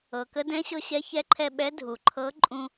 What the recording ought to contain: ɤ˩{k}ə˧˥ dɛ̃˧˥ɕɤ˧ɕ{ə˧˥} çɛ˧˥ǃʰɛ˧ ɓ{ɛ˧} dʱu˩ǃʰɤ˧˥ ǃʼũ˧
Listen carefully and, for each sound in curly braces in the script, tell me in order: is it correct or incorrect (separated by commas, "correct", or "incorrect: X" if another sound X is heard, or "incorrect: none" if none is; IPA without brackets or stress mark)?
correct, incorrect: ɛ˧˥, incorrect: ɛ˧˥